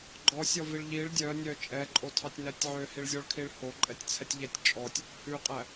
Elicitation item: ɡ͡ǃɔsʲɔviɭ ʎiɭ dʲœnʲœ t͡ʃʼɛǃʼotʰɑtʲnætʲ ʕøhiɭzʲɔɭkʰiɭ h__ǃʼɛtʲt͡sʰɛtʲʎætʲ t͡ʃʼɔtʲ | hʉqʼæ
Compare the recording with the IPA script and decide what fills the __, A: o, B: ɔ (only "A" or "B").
A